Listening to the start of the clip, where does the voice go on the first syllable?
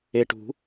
low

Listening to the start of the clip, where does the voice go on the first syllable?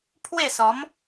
falling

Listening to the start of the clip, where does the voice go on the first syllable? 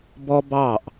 high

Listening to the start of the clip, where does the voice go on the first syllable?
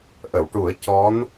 low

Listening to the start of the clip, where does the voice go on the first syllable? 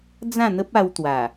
falling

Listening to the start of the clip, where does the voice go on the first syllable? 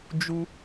high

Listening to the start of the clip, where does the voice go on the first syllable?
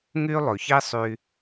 high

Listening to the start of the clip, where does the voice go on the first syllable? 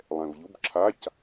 low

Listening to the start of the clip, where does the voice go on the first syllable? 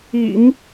low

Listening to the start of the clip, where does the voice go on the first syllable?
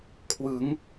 rising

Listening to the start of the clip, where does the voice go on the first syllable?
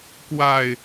falling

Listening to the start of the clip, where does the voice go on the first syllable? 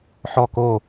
falling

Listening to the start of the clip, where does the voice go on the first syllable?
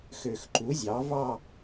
low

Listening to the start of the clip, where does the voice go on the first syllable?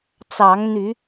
rising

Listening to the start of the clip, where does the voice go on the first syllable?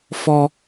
high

